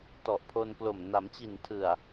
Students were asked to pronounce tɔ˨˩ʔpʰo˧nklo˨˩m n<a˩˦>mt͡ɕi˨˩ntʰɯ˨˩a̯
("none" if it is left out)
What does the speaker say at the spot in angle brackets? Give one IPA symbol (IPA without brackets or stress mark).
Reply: a˩˦